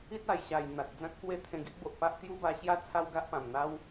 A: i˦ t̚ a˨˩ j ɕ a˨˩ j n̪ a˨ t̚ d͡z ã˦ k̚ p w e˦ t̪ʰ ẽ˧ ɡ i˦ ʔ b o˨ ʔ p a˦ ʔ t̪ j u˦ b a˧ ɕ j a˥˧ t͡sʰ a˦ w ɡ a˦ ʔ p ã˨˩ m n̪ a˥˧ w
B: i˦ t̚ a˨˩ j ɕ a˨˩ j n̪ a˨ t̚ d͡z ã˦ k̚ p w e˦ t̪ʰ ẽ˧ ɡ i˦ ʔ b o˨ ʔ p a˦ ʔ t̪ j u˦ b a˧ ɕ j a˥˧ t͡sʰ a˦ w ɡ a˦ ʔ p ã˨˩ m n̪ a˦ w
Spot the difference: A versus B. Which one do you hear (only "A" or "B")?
B